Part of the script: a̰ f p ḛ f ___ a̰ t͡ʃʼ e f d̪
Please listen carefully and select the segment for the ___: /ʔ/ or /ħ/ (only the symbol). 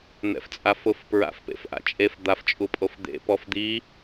ʔ